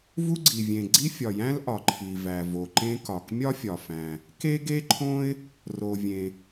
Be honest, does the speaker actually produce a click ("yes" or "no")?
yes